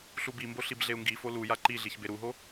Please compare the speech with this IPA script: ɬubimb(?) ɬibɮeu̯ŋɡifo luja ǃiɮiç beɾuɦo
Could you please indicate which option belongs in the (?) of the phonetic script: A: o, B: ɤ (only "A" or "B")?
A